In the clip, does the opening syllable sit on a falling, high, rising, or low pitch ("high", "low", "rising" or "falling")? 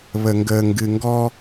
low